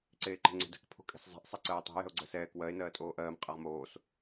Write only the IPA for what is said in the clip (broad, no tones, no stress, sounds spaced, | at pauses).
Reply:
ǀ eː ǃ e̤ ŋ͡ǀ ɛ̤ d ɛ̤ k pʰ o̤ kʼ e̤ s zˤ ɛ̤ ʔ sˤ ɛ ǀ ɜː tˤ o̤ j ɛ̤ o̯ ɡ͡ǀ ɜ s ɛː k w ɜ e̯ n ɜː tʼ oː ʔ ɜː m qʼ ɜ ʁ m oː s